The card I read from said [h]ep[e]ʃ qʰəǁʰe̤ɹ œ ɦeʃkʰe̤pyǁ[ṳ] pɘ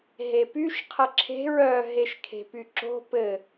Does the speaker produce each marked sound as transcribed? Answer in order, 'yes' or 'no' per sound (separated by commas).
no, no, no